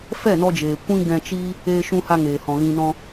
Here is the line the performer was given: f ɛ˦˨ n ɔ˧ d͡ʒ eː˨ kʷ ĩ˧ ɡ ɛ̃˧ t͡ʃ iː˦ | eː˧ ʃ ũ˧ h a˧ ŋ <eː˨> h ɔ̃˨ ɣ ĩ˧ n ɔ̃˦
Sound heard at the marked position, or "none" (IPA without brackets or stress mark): eː˨